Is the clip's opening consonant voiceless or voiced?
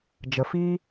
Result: voiced